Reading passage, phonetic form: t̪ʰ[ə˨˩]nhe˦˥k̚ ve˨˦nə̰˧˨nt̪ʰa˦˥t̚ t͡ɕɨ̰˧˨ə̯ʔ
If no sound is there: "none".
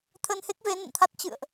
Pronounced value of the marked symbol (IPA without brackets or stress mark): ə˧